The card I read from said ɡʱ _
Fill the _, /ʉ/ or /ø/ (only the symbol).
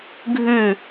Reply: ʉ